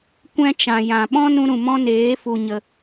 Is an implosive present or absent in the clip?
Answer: present